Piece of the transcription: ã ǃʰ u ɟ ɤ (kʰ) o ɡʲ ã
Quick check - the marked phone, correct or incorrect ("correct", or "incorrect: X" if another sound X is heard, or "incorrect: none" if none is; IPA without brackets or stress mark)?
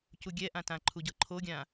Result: incorrect: ǃʰ